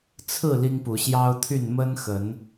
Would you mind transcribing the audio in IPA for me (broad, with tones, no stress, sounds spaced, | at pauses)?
t͡sʰ ɹ̩˥˨ l i˦ ŋ p u˨˦ ɕ j ɑ˦ ʊ̯ t̪ʰ y˥˨ n m ə˦ n x ə˨˦ n